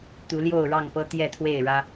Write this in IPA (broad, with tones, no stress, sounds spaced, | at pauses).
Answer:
t̪ u˨˦ l j o˥˨ ʊ̯ ɻ ɑ˥˨ ŋ p ɤ˦ t̪ j ɛ˥˨ t̪ʰ w e˥˨ ɪ̯ ɻ ä˦